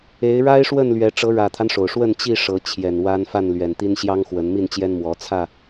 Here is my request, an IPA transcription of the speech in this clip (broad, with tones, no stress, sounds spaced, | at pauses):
e˨˦ ɪ̯ ɻ a˦ ɪ̯ ʂ w ə˥˨ n l ɥ ɛ˨˦ ʈ͡ʂ ɤ˨˦ ɻ ä˨˩ t̪ʰ a˦ n ʂ o˩ ʊ̯ ʂ w ə˥˨ n t͡ɕ i˥˨ ʂ ɤ˨˦ t͡ɕʰ j ɛ˨˩ n w a˦ n f a˥˨ n l ɥ ɛ˨˩ n t̪ i˦ n ɕ j ɑ˦ ŋ x w ə˨˦ n m i˥˨ n t͡ɕ j ɛ˦ n m w ɔ˨˦ t͡sʰ ä˥˨